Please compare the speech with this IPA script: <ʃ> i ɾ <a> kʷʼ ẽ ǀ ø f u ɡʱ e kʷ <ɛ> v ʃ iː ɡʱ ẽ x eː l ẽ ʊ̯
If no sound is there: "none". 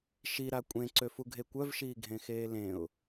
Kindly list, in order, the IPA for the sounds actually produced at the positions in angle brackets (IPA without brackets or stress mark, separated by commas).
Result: ʃ, a, œ